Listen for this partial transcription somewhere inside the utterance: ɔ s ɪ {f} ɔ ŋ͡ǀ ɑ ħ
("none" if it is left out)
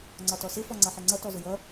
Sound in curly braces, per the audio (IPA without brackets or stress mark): f